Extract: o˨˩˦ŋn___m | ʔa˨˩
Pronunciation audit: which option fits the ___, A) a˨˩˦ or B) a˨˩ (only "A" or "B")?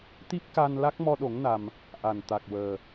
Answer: B